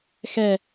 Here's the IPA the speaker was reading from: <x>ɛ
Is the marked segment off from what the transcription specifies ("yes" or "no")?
no